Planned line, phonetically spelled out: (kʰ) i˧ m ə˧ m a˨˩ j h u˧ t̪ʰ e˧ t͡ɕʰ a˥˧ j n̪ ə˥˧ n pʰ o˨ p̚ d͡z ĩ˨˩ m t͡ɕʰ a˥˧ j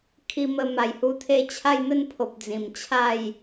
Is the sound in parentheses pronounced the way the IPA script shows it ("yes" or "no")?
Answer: yes